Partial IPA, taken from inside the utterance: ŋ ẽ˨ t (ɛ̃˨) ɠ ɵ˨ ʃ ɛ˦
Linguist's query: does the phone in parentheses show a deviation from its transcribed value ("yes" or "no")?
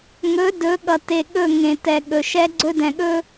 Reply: yes